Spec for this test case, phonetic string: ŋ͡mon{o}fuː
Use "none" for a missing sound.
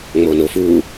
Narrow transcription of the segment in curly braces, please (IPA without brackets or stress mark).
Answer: o